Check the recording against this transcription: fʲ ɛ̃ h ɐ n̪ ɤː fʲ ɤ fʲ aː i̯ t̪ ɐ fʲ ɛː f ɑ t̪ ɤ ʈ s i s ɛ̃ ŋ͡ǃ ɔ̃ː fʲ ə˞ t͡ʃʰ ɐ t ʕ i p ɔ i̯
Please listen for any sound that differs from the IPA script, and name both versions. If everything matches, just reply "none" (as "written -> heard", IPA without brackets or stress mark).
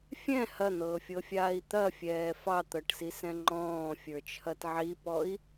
none